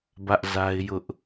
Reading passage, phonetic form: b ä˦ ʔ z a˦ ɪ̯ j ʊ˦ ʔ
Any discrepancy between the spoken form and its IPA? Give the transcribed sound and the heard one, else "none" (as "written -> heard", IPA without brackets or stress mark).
none